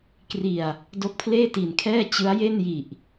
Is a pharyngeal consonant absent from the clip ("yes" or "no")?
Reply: yes